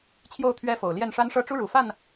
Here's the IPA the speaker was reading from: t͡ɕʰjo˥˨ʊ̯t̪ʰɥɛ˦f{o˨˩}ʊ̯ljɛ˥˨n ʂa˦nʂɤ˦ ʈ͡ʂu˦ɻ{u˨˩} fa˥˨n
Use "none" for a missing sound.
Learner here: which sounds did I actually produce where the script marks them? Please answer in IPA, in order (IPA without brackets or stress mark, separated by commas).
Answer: o˨˩, u˨˩